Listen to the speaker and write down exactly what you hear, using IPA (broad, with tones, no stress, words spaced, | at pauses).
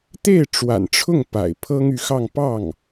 t̪e˥˩ɪ̯ʈ͡ʂwa̰˨˩nʈ͡ʂʰʊ˥˩ŋ pa̰˨˩ɪ̯pʰɤ˥ŋ y˧˥xɑ˥˧ŋ pɑ˥˩ŋ